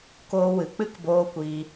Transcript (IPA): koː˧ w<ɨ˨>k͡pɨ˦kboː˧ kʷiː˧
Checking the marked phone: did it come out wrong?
no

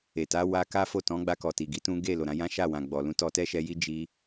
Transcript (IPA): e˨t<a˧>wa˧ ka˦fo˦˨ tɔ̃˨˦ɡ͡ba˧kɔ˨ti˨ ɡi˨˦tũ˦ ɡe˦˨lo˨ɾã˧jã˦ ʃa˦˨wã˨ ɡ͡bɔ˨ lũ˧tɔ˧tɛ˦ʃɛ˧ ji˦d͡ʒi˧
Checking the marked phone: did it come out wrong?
yes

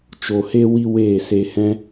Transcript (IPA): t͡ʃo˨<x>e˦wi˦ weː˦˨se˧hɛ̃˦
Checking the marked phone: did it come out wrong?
yes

